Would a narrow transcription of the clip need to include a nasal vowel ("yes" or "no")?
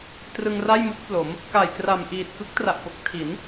no